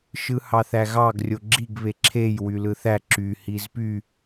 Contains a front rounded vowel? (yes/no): yes